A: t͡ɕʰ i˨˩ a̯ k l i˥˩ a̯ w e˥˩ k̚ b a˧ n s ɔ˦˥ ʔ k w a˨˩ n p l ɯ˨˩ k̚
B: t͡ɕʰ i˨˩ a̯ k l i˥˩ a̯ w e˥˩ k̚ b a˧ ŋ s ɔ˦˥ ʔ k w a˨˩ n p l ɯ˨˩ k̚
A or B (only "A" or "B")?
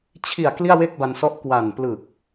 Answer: A